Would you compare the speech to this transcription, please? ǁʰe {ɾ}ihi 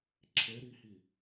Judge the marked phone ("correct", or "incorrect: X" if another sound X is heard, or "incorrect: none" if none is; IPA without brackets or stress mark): correct